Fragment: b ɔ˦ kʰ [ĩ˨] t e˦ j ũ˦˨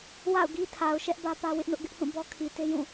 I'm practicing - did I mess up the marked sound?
yes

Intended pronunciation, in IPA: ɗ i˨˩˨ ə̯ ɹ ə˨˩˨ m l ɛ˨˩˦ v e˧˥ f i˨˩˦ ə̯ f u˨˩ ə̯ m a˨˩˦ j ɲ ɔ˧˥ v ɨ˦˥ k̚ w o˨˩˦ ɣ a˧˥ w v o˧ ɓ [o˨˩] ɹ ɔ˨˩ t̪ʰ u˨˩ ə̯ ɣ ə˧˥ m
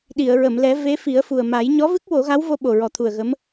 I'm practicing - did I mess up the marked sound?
no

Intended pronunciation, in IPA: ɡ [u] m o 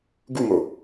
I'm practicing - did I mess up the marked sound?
no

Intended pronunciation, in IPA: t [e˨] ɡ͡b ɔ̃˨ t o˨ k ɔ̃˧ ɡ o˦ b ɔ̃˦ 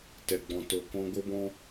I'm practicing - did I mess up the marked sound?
yes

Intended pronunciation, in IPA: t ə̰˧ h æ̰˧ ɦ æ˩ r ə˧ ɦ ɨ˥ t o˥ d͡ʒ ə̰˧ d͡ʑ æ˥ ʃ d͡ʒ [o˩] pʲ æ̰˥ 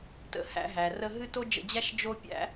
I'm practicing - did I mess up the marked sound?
yes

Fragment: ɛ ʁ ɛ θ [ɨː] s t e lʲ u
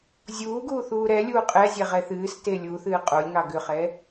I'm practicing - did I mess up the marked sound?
no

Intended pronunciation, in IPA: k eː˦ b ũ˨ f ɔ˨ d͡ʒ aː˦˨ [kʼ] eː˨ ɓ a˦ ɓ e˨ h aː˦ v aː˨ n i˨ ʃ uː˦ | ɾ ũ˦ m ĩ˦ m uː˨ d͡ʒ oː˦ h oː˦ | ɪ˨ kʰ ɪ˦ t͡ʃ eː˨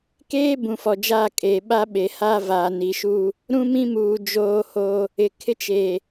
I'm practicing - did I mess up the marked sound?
no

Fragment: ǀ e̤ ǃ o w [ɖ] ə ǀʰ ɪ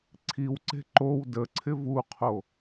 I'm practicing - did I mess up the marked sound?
yes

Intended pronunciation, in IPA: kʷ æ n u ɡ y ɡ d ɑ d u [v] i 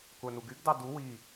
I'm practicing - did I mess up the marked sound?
yes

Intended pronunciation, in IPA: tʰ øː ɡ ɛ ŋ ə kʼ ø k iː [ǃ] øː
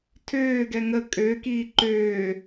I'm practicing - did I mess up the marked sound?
no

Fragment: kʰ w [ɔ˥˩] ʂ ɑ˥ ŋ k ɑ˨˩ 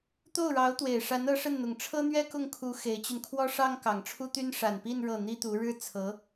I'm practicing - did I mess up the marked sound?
yes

